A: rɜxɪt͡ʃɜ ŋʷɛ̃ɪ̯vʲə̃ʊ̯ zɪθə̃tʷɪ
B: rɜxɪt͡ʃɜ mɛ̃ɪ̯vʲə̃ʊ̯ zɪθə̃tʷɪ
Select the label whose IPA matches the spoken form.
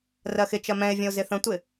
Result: B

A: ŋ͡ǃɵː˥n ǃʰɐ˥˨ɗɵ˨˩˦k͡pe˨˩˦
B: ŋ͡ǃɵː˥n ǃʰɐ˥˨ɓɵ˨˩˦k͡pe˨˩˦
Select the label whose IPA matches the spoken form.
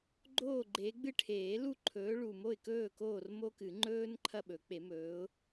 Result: B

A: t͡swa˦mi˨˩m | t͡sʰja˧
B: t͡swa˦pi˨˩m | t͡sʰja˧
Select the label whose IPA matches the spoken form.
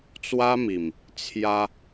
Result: A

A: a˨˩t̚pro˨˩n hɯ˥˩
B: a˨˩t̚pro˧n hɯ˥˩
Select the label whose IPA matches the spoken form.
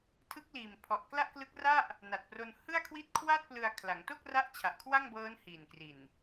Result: B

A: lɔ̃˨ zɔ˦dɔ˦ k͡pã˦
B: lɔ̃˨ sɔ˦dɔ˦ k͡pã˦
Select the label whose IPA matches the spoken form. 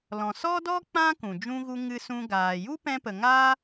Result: B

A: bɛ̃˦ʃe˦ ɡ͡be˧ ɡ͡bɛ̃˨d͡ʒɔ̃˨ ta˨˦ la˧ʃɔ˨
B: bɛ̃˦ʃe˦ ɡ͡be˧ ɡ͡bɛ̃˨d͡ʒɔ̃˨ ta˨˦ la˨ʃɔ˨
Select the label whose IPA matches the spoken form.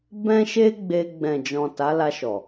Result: A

